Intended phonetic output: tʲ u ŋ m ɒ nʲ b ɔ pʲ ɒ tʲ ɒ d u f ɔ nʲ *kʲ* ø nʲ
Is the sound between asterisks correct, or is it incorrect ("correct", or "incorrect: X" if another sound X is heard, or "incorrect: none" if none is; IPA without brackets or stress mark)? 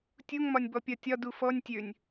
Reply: incorrect: tʲ